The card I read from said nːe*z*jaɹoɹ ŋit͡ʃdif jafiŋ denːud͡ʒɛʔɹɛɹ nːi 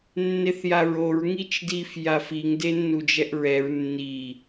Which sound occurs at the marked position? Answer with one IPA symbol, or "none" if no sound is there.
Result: θ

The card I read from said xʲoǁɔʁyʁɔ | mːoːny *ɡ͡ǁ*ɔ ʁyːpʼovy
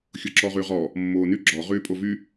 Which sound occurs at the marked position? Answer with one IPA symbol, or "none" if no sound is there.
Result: ɡ͡ǁ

